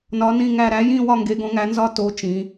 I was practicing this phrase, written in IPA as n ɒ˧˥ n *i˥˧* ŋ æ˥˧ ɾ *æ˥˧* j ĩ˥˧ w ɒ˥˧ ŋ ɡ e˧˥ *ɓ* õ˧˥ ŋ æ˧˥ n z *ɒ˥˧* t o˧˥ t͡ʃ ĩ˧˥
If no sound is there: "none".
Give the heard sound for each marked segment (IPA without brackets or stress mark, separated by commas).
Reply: ĩ˥˧, æ˧˥, ɡ, ɒ˥˧